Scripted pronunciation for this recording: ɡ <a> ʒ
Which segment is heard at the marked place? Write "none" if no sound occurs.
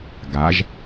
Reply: a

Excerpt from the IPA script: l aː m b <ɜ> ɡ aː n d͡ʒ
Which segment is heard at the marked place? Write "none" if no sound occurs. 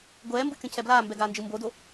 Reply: ɛ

